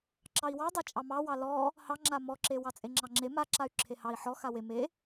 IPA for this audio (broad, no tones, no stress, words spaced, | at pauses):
ǁɑi̯wɑ dˤat͡ʃʼɑmɑwɑ lɔ | hɑŋ͡ǁa mɔǁe wɑt͡sʼeŋ͡ǁɑŋ͡ǁe maǁay̯ ǁʰehɑi̯ ħɔ xawe me